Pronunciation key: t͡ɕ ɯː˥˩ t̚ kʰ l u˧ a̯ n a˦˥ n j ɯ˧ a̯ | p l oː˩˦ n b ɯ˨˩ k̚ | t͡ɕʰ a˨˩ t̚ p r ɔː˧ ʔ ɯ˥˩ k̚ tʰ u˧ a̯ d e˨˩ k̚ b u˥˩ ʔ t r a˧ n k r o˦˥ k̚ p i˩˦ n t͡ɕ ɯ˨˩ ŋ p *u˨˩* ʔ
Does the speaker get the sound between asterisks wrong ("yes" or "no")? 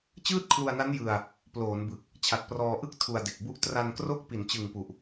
no